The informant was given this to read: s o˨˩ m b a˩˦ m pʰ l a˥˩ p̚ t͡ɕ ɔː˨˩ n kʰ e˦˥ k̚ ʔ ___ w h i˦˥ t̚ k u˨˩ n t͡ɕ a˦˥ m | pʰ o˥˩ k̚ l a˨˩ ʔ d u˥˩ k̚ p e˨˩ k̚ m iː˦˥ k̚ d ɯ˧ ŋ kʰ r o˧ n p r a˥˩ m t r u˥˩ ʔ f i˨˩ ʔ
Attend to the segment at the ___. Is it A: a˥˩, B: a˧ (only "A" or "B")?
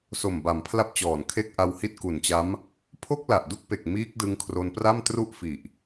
B